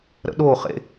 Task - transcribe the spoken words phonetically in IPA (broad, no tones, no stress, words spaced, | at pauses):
ɾə̰ɗoχḛ